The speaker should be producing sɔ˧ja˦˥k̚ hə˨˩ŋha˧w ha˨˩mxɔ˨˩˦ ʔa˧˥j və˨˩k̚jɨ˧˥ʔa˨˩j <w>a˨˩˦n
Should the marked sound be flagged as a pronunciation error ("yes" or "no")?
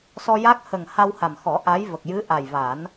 yes